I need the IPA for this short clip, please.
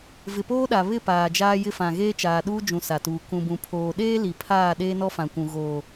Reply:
v ɪ˨ p oː˦ ɗ a˨ β ɪ˦˨ p aː˨ d͡ʒ aː˦ j ɪ˦ f ã˨ ɣ eː˦ t͡ʃ aː˨ ɗ uː˦ d͡ʒ ũ˨ s a˨ t uː˨ k ũ˨ b ũ˨ pʰ oː˨ ɗ eː˦ l i˨ pʰ aː˦˨ ɗ eː˦ n ɔ˦ f ã˨ kʷ ũ˨ ɣ oː˨

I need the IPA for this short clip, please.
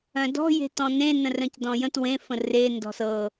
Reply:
œ̃ d ɔ̤ j e̤ t ɔ̃ n ẽ n ə̃ r œ̃ c d ɔ̃ j ə̃ t w ẽ f ə̃ r e n d ɔ̤ s ɤ

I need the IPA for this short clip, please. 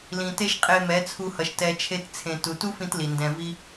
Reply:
l ĩ˨ t e˧ ʃ qʼ e˧ m ɛ˨˦ t͡sʰ u˧ h ʌ˨ ʃ t ɛ˧ t͡ʃʰ e˦ t t͡sʰ ẽ˧ t u˧ t u˦ f ĩ˧ t l i˨ n d ɛ̃˧ v i˦

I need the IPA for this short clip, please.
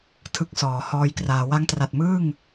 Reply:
tʰ ɯ˦˥ k̚ s ɔː˩˦ h ɔː˧ j k r aː˩˦ w a˦˥ ŋ t r a˨˩ t̚ m ɯː˥˩ ŋ

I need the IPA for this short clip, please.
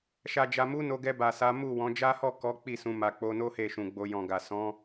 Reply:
ʃ a˨ d͡ʒ a˨ m u˨˦ n o˧ ɡ ɛ˧ b a˨ s a˨˦ m u˦˨ w ɔ̃˨˦ d͡ʒ a˦ h ɔ˦˨ k ɔ˨˦ k͡p i˦˨ s ũ˨˦ m a˧ k͡p o˧ n o˦ h e˦˨ ʃ ũ˨ ɡ͡b o˧ j ɔ̃˨ ɡ a˨ s ɔ̃˨˦

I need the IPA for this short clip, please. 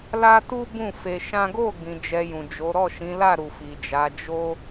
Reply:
l a˦ t u˦ b ũ˦˨ f e˧ ʃ ã˦ ɡ o˦˨ ɡ ĩ˨ d͡ʒ ɛ˧ j ũ˨ d͡ʒ o˨˦ ɾ ɔ˦˨ ʃ ĩ˨˦ l a˦˨ ɾ u˨ f i˨ d͡ʒ a˨˦ d͡ʒ o˦

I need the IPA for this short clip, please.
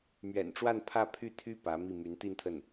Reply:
m ɥ ɛ̰˨˩ n ʈ͡ʂ w a˥˧ n pʰ ä˥˧ pʰ y˥˩ t̪ʰ y˥ p ä˧˥ m i˥˩ m y˧˥ n t̪ i˥˧ n t̪ʰ ə˥˩ n

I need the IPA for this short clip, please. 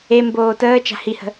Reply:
e m b oː t əː t͡ʃ a̤ h i h ə̤

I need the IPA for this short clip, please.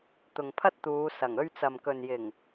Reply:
t̪ ʊ˨ ŋ pʰ ɐ˥ t̚ t̪ uː˨˧ s ɐ˨˩ ŋ ɵ˧ ɥ t͡s ɐ˨ m k ɵ˨ n j ɪ˨˩ ŋ

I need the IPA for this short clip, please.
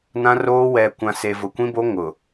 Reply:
n ã˦ r oː˦ w ɛ˨ kʷ ã˨ s e˨ v ʊ˨ kʷ ĩ˦ b o˦ ŋ ʊ˨

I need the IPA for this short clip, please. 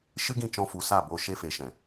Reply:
ʃ ɨ˦ ɡ ĩ˦˨ t͡ʃ ɔ̃˧ f u˨ s a˦˨ b o˧ ʃ e˧ f e˨ ʃ ɛ̃˨

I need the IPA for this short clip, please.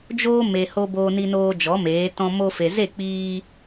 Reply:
d͡ʒ oː˦ m e˨ h o˧ b oː˧ n i˧ n oː˧ d͡ʒ ɔ˨˦ m eː˨˦ t ɔ̃˧ m o˧ f e˨ z e˦˨ k͡p iː˧

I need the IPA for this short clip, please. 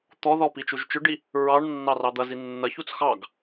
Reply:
t̪ ɔ ð ɔ p i t͡ʃ u ʒ t͡ʃ ʏ ɖ i | ɹ ɑ ɳ nː ɑ r ɑ d̪ ɐ z i nː ɐ ç u t͡s x ɑ ɡ

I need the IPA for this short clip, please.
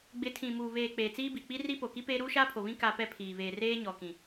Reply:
ɡ͡b ɪ˨˦ tʰ ĩ˨ m uː˨ β eː˨ k͡p eː˨ t͡s iː˦ b i˨ k͡p i˦ r i˦ p o˨ k i˦ p eː˦ ɾ uː˦ ʃ aː˦ pʰ o˨ β ĩ˦ k a˦ p ɛ˦ pʰ iː˨ β eː˨ r eː˦ ɲ ɔ˨ k ĩ˨

